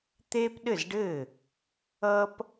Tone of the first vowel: high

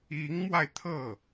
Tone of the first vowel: rising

